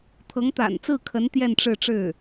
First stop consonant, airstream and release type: aspirated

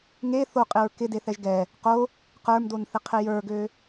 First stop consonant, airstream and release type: ejective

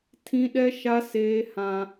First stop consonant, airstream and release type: aspirated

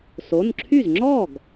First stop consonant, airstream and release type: click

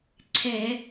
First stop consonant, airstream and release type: click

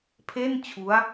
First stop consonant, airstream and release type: aspirated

